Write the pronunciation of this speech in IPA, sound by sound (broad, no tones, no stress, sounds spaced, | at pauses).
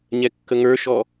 ɲ ɛ kː ə ŋ ə˞ ʃ ɔ